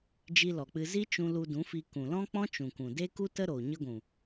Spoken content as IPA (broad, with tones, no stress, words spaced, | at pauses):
d͡ʒi˧lɔ˨k͡pɨ˧ zi˦t͡ʃũ˧ lu˧dũ˨˦fi˧ kũ˨lɔ̃˦k͡pɔ̃˦t͡ʃũ˨ kũ˨ de˦ku˦tə˦ ɾo˨ ɲə˧ɡʷũ˨